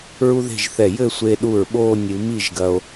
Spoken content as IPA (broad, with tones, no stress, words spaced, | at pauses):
ɹu˥ðe̤˥˧ʒθɛ˧˩ jɘ˥˧sʷe˧ɗu˧˩ɹ ɓoː˥˧nʲɨ˩˧ mi˥˧ʒɡɐ˧o̯